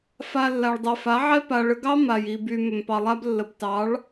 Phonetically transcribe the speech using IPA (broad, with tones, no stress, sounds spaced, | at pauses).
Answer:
f a˧ lː a˨ ɭ dˤ ɛ˨ f a˨˦ ʕ ɛ˦ p a˨ ɭ ə˧ ɡ ɑ˦ m a˨ j i˨ b y˨ m ʏ˨ m p ɑ˨ lˠ a˦ b lː ə˨ b t ɑ˨˦ ɭ